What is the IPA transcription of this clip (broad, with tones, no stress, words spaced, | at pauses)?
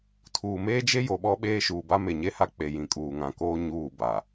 tʰuː˨meː˦d͡ʒe˦ jo˨ɓɔ˦ɓeː˦ ʃuː˨ba˦me˨ ɲe˦ha˦k͡pe˨jĩ˨ kʼuː˨ŋã˨koː˦ ɲuː˦˨ ba˨